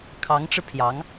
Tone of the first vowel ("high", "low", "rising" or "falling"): rising